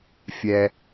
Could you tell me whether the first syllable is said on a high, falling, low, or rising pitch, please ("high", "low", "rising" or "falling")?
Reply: low